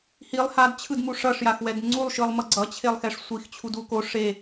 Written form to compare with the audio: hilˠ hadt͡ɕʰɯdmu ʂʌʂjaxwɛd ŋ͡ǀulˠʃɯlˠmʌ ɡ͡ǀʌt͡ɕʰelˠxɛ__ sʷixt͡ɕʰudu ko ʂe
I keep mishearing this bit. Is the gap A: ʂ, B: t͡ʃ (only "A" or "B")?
A